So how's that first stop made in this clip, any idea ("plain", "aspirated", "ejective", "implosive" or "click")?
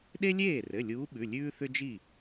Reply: implosive